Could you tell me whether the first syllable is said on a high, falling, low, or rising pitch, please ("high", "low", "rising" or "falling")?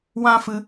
high